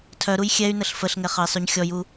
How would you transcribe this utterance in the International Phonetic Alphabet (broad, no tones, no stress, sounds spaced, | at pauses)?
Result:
tʰ œ ɾ u j xʲ ɛ y̯ n ə ɬ f ə ɬ ŋ ɛ χ ə i̯ sˤ y ɲ xʲ ɔ j u